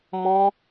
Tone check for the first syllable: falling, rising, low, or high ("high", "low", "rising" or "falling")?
high